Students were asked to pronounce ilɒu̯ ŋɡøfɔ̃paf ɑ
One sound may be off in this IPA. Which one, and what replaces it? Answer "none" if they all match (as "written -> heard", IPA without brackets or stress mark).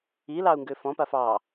ɒ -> ɑ